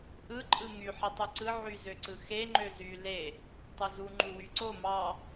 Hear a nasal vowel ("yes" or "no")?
no